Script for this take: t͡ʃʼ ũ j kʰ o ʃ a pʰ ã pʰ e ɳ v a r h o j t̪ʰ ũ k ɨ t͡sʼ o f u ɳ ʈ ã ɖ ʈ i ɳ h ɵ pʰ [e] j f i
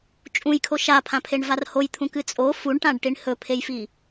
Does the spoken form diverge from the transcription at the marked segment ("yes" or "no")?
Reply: no